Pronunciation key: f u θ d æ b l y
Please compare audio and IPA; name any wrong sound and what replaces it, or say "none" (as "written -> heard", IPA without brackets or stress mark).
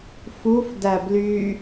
θ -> f